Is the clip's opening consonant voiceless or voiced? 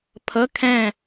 voiceless